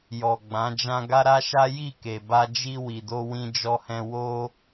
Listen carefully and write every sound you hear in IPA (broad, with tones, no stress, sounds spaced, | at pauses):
j ɔ˨ ɡ͡b ã˨˦ d͡ʒ ã˦ ɡ a˦ ɾ a˦ ʃ a˦ j i˦˨ k e˨ b a˧ d͡ʒ i˧ w i˨ d o˧ w ĩ˧ d͡ʒ ɔ˧ h ɛ̃˧ w o˦